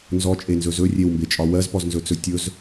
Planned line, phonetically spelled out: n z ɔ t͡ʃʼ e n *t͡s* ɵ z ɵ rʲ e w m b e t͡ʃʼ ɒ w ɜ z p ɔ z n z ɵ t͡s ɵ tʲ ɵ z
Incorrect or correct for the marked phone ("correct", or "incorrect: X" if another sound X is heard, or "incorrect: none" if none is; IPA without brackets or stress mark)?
incorrect: z